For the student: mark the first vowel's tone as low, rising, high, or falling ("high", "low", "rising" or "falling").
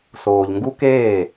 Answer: low